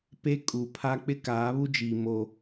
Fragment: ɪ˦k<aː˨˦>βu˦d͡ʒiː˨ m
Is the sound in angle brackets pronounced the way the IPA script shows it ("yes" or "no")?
yes